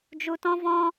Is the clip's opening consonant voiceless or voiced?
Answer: voiced